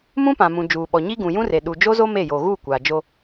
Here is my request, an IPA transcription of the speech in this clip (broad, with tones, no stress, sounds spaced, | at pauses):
m ũ˦ p ã˨ m ũ˨ d͡ʒ uː˨ ɓ ɔ˨ ɲ i˦ ɡ ũ˨ j ũ˦ r e˨ ɗ u˨ d͡ʒ o˦ z o˦ m e˦˨ j o˨ ɣ uː˦˨ kʷ aː˨ d͡ʒ o˦